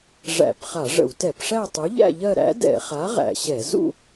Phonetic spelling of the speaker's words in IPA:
ʐæ̰˧˩˧pχa˧˩˧ ʐə̰˧˩˧wtɛ˧˩˧pʂæ˥˧ tˤu˨˥ʎæ̰˥˧ʎɜ˥˧ ɾæ̰˨˥dɛ̰˧˩˧χa˨˥ ʁæ̰˧˩˧ɕɛ˧˩˧ zṵ˥˧

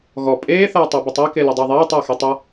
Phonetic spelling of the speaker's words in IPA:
ɣɔ pʼeːθɐː tˤabətˤa kelədˤaðˤeː tˤɐːxetˤɐ

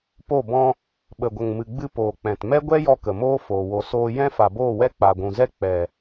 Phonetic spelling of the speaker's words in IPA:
po˦˨bɔ̃˧ | ɓə˨ɡʷə˨ŋmɨ˨ɡ͡bɨ˧ poː˨k͡pɛ̃˨t mɛ˦ɡʷɛ˦jɔ˧ kə˨moː˦foː˨ wo˨soː˧ jɛ̃˦fa˨boː˦˨wɛ˦ k͡pa˨ɡʷũ˨zɛ˦ k͡pɛ˨

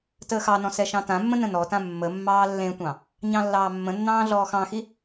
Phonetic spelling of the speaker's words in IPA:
təːxɑnɔ̃ sɛʃɑ̃tãmːə̃ nə̃nɔtã mːəmːɑː lːẽtʷɑ̃ | ɲɑ̃lːɑːmːə̃nːɑ̃ː ɮɔːxɑ̃xi

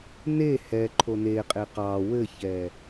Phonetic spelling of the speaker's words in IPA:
ne hɛ ǃʰoneqʼe qɑ wɘçɛ

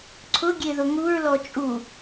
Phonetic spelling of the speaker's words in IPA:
ǀʰʊ ɡʲeðʊŋuɹlɔ t͡ʃʼu

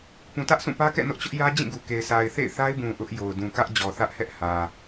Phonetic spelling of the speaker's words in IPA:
pũ˨tä˦ʔsũ˦˨pä˦ kɛ̰˦˨nʊ˦ʔt͡ɕʊ˦ʔjä˦ d͡ʑĩ˦˨ɡu˨ke˨ɪ̯ sʰa˨ɪ̯θḛ˦˨ɪ̯ θa˦ɪ̯bũ˨ ʔʊ˦ʔjo˨ʊ̯ dũ˨kä˦ʔd͡ʑɔ˨θä˦ʔ hɛ˦ʔhä˨

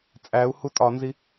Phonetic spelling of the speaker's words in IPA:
t͡sʼæu̯ hutʼɒnzi

